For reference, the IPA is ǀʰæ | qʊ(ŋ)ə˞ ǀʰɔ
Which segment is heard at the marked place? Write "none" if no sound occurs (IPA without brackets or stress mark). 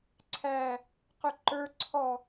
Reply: ǃ